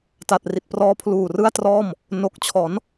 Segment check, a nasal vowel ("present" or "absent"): absent